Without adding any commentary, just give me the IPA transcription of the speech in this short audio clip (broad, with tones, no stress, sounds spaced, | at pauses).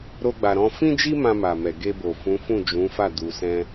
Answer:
ɾ o˦ ɡ͡b a˧ ɾ ɔ̃˦ f ĩ˦ d͡ʒ i˦ m ã˧ m a˨ m ɛ˨ ɡ e˧ b o˨ f ũ˨˦ f ũ˦˨ d͡ʒ ũ˨˦ f a˦˨ d u˧ s ɛ̃˦